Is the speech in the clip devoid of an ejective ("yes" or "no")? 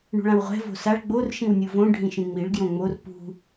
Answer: yes